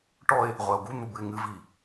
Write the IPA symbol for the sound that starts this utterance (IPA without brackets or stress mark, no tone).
ʈ